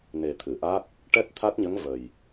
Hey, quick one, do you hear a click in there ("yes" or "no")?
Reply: no